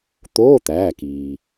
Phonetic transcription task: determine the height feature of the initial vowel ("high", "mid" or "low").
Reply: mid